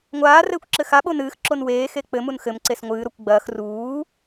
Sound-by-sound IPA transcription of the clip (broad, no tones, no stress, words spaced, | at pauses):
ŋʷaː rɘːkʷǁɘxa ɓonɨːx ǁonweː xek͡pɘ munxɘm ǀesŋʷɨː ɾokʷɡ͡bɐːx ruː